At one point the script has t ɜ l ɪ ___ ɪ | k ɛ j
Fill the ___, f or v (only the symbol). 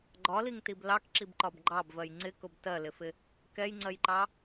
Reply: f